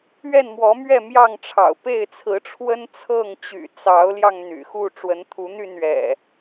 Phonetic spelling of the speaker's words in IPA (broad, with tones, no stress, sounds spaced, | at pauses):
ɥ ɛ˥˨ n m w ɔ˨˦ m ɥ ɛ˥˨ m j ɑ˥˨ ŋ ʈ͡ʂʰ ɑ̰˨˩ ʊ̯ p e˥˨ ɪ̯ t͡sʰ ɹ̩˨˦ ʈ͡ʂʰ w ə˦ n t͡sʰ ɤ˥˨ ŋ t͡ɕ y̰˨˩ t͡s ɑ˨˦ ʊ̯ l j ɑ˧ ŋ n̪ y̰˨˩ x u˥˨ ʈ͡ʂ w ə˨˦ n t̪ʰ u˨˦ n̪ y˥˨ n ɥ ɛ̰˨˩